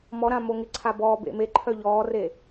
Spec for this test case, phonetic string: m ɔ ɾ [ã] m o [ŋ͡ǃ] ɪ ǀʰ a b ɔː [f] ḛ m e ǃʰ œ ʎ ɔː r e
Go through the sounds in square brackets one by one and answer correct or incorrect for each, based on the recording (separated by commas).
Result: correct, incorrect, incorrect